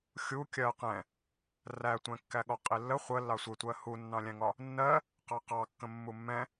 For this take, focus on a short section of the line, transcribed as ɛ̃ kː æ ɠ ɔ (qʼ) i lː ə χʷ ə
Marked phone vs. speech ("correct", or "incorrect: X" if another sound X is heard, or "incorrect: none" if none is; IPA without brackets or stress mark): correct